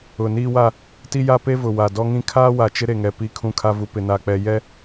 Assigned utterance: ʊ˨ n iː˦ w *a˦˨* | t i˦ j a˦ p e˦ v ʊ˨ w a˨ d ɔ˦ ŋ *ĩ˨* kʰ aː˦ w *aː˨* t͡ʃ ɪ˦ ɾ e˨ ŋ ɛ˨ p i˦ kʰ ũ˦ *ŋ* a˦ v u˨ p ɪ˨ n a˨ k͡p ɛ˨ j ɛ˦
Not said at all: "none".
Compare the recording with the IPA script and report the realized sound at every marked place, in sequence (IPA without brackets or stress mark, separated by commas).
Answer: a˦˨, ĩ˦, a˨, kʰ